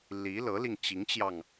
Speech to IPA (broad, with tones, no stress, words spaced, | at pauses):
li˧˥ lɤ˧˥li˧ŋt͡ɕi˧˥ŋt͡ɕjɑ˧ŋ